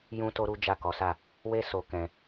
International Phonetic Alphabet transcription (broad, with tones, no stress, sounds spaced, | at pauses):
j ũ˦ t o˦ ɾ u˦ d͡ʒ a˦˨ k ɔ˨˦ s a˦˨ | w e˦ s o˧ k ɛ̃˧